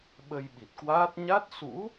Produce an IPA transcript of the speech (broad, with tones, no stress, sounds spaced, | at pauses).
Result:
ɓ ə˧ j ɓ i˨˩ t̚ k w aː˦˥ t̚ ɲ a˦˥ t̚ s ṵ˧˥